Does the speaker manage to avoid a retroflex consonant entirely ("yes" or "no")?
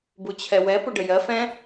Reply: no